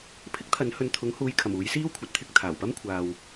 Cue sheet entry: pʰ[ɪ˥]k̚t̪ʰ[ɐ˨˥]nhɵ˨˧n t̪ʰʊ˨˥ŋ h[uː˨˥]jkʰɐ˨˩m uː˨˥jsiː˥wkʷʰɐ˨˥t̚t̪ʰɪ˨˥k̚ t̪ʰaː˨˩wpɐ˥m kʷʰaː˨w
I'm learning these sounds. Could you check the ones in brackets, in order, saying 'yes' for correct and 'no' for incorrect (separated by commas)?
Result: yes, yes, no